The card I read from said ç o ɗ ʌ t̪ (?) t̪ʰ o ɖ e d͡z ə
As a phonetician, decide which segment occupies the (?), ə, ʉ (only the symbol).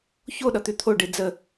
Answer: ʉ